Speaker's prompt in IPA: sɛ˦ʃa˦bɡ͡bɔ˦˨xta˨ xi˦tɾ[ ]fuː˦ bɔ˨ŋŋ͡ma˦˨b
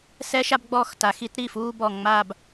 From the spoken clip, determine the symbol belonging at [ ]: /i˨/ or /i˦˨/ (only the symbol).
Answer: i˦˨